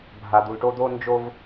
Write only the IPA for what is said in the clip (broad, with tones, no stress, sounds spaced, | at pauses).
bʱ a˨ d̪ u˨ l ʈ o˦ d̪ o˦ n d͡ʒ o˦ v